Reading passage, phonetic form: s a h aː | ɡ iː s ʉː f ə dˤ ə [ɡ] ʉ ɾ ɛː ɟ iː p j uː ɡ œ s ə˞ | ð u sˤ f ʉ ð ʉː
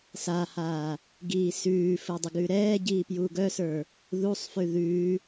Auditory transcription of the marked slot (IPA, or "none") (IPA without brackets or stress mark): ɡ